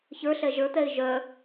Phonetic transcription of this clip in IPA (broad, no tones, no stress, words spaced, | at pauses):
çə˞ɬɛ ʒə˞t̪ɛɪ̯ ʒœ